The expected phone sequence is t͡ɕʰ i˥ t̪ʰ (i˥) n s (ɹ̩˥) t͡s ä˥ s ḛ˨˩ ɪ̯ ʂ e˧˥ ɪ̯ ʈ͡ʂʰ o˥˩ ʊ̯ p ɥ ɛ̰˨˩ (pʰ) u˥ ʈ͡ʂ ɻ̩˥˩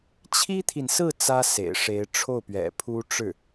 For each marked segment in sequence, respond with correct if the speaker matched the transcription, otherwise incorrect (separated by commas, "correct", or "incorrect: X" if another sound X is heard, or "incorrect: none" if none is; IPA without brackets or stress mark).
incorrect: i˨, incorrect: ɹ̩˥˩, correct